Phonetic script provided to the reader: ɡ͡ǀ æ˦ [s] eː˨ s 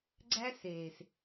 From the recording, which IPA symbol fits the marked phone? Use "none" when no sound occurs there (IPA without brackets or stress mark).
s